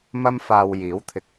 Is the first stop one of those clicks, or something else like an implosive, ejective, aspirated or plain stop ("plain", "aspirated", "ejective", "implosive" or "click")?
aspirated